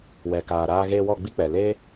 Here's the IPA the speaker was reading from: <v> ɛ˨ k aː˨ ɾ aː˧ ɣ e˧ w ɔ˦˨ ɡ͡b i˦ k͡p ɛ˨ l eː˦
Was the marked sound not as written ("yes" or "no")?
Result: yes